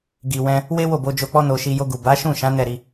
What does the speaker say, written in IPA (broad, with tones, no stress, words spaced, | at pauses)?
ɡi˨wɛ̃˧ | we˦ wo˦˨bo˧d͡ʒo˧k͡pɔ˦ no˧ʃi˧ jo˧ɡu˨ ba˨˦ʃũ˦˨ʃã˨˦ nɛ˦˨ɾi˧